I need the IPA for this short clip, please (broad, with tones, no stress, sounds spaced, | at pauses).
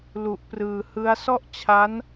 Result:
l u˨˩ ʔ p r ɯː˨˩ h ɯ˦˥ a̯ s ɔ˥˩ ʔ t͡ɕʰ a˦˥ n